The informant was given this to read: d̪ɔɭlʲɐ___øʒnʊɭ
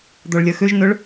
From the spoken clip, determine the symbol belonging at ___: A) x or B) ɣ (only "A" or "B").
A